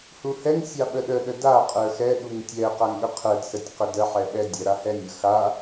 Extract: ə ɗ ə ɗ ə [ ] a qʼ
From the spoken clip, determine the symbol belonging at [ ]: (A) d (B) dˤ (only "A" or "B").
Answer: A